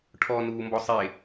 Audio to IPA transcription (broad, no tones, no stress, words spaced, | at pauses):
ʈʰɔnuːmbɔ sˤe